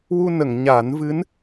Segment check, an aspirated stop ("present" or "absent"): absent